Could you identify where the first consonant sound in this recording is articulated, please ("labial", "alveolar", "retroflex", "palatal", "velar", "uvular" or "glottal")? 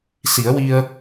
alveolar